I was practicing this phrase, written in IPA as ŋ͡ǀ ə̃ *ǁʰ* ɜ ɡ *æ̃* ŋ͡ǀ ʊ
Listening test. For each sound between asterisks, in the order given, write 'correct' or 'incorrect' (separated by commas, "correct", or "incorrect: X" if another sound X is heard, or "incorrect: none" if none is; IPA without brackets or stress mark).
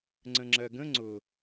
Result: incorrect: ŋ͡ǁ, incorrect: ə̃